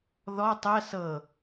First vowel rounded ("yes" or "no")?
yes